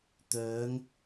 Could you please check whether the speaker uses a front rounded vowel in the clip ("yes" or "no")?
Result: yes